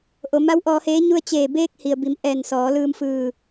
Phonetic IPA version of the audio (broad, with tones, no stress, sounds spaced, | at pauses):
ʔ o˩˧ m a˧˥ w ʔ ɔː˧ h eː˧˥ ɲ u˧ ə̯ t͡ɕ eː˧˩ b eː˧ k̚ h i˩ ə̯ b i˩˧ m ʔ ɛː˧˩ n s ɔː˩˧ l ɯː˧ m f ɯː˧˩